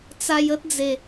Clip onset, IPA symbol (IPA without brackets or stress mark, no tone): t͡s